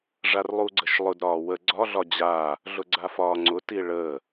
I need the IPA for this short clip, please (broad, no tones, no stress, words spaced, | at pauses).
ʐarlˠuɡ͡ǀəʃlˠʊd ɾɒːwə ɡ͡ǀɒ ɮɒd͡ʑaː | ɮʊɡ͡ǀafɒːŋ͡ǀʊ tiɭəː